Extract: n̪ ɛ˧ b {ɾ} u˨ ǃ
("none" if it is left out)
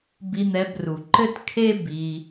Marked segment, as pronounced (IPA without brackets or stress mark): r